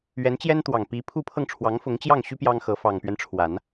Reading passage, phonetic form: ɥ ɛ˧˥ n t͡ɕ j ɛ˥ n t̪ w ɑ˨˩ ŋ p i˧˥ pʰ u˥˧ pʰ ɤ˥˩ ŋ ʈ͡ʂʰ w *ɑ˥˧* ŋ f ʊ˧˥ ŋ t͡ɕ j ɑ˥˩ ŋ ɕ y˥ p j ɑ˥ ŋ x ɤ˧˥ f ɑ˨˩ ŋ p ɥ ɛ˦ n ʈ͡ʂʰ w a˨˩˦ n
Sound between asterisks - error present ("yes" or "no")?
yes